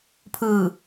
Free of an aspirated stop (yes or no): no